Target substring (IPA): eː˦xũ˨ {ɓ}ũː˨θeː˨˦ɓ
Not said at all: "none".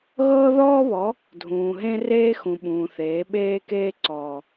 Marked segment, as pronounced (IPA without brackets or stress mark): ɓ